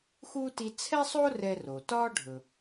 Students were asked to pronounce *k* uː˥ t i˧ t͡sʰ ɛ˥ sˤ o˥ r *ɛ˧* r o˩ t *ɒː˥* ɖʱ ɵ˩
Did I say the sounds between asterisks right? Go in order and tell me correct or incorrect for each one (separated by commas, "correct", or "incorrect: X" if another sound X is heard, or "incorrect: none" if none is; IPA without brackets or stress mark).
incorrect: x, correct, correct